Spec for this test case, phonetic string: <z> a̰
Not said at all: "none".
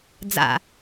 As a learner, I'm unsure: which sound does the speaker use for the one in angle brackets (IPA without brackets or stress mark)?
d͡z